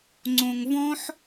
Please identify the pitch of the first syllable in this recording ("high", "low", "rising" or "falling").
low